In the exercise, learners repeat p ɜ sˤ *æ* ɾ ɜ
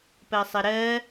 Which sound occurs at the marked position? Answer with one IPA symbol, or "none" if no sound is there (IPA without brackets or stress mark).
ɜ